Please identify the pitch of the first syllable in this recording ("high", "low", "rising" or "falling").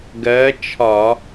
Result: rising